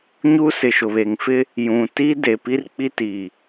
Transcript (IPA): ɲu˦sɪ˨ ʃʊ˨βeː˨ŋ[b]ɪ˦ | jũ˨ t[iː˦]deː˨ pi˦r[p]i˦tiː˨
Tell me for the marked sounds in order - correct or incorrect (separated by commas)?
incorrect, correct, incorrect